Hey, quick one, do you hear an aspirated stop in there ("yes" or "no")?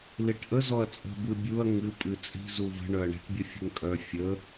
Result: no